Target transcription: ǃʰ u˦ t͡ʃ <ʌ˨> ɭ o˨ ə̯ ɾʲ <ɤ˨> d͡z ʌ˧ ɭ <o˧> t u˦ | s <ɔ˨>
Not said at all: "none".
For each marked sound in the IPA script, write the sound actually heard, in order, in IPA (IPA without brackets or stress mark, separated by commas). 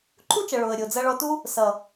ʌ˨, o˨, ɔ˧, ʌ˨